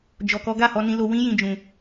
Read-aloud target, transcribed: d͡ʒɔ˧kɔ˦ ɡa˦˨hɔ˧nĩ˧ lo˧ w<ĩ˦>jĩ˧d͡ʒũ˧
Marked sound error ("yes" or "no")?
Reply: no